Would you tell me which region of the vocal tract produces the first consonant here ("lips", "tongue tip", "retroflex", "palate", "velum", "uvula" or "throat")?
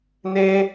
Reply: tongue tip